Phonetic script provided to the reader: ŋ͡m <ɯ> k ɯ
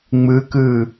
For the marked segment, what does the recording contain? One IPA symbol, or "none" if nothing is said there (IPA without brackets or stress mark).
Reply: ɯ